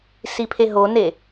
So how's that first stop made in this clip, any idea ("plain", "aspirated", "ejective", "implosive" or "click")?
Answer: aspirated